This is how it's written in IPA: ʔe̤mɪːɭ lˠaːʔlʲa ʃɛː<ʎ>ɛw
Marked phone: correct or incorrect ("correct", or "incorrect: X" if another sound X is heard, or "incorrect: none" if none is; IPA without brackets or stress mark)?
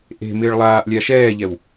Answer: correct